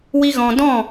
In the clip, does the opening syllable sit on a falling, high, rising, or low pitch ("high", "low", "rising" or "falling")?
high